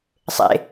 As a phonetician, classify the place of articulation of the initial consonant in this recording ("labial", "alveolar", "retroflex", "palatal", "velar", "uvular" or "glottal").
alveolar